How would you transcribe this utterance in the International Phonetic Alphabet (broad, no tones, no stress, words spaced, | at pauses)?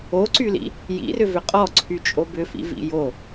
oǀylḭ | jḭrʏvʏ qʼɔǀʰyt͡ʃʼo bʏfḭvḭ jo